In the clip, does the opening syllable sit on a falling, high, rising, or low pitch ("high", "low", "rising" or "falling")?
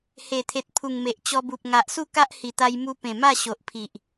low